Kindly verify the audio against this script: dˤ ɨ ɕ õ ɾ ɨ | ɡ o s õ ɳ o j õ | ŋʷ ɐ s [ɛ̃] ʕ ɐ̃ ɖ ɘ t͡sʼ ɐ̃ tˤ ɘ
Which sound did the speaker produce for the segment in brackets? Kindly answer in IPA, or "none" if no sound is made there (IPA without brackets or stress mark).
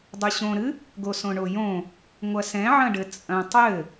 ɛ̃